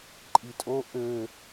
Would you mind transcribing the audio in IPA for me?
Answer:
ǃʼ i tʼ o ʔ ø

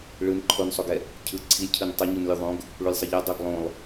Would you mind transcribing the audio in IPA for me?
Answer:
ɭ ɯ n ǃʰ o n sˤ o ɡ ɛ | cʰ ɯ ǀʰ i lʲ cʰ ɯ n tˤ ɯ ɲ u n lʲ u ðˤ õ ɡ | ɭ u lʲ sˤ ʌ ʎ a dˤ o ɡ lˠ õ lˠ

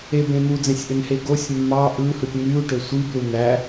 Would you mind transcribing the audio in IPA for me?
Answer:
e b ẽ n̪ u d͡z ẽ sʲ ʔ ø n h e ɡ o sʲ mː ɑ ʔ ɯ h ɯ tʲ n̪ y u̯ ʈ ø sʷ i b l u n̪ æ

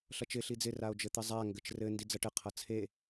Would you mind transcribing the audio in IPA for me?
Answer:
ɬ ʌ t͡ʃ ɪ ɬ i d͡z ɪ r a o̯ d͡ʒ ɘ t̪ ɘ zˤ a ŋ ɡ ɘ t͡ʃ r ɘ n d i d͡z ʌ ʈ ɘ qʰ ʌ t͡sʰ e

